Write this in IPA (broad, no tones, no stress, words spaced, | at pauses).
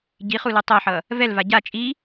ɟiχulu tˤoħʌ | vɛlva ɟa t͡ʃʼi